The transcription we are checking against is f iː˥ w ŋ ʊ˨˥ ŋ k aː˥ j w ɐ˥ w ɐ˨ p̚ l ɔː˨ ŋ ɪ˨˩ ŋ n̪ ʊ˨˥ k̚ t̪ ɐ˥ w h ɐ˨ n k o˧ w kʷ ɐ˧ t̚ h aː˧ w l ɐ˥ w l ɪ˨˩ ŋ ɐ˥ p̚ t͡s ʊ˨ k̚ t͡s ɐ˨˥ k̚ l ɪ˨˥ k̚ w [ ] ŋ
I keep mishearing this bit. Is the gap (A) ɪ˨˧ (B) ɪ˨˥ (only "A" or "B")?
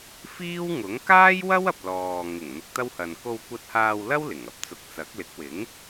B